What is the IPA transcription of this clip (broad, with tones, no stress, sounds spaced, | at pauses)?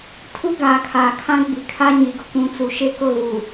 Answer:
tʰ u˦ ɡ aː˨ kʰ aː˨ kʰ ã˦ ɡ͡b i˨ kʰ a˦ ɲ i˨ ɡ ʊ˦ k ũ˨ t͡s u˨ ʃ e˦ k ʊ˦˨ ɣ u˨